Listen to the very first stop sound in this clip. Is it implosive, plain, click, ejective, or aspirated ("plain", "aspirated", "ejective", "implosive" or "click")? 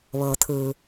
aspirated